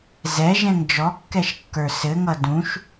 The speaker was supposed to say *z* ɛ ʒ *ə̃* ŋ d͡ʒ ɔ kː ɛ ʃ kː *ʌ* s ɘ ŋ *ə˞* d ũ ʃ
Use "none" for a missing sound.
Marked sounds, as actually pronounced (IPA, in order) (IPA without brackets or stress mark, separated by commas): z, ɛ̃, ə˞, ʌ